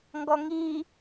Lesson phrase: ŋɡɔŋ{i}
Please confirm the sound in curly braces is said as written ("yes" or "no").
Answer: yes